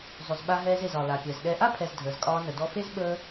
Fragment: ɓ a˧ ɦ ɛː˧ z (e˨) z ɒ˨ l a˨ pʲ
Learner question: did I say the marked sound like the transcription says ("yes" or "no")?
yes